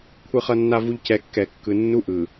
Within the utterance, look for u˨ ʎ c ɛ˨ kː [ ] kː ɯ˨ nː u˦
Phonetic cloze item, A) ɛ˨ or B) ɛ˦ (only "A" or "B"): A